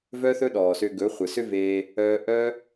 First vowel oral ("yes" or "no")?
yes